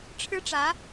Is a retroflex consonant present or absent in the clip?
present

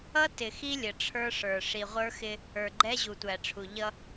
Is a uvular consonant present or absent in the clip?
present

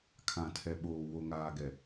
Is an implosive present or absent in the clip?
present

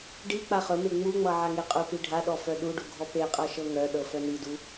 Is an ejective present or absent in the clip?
present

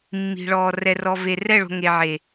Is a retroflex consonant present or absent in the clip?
present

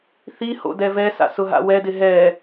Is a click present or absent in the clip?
absent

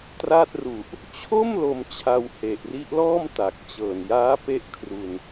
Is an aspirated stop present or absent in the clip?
present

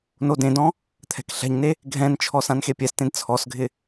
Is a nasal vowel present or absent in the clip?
present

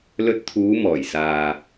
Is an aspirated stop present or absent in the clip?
present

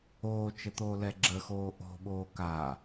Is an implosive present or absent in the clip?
present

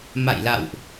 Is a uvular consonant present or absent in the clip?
absent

